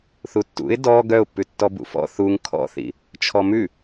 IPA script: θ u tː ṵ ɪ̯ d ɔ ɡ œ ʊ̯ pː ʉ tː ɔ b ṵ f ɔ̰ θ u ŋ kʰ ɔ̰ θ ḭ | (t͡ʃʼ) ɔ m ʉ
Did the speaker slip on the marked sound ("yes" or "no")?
yes